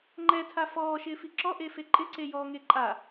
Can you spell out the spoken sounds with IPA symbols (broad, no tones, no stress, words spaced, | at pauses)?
ŋ͡ǃɛtʰa fɔːʃɪːfi ǁɔʔefe ǃʼɪǀejɔːŋe ǃʼa